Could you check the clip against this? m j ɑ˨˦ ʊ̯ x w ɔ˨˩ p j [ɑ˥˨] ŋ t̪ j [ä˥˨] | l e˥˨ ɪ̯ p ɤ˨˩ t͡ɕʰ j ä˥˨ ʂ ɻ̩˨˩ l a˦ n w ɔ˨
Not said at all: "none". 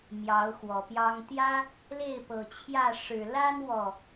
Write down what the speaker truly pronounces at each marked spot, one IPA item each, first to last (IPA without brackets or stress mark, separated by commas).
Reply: ɑ˦, ä˦